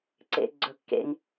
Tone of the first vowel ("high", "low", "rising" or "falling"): low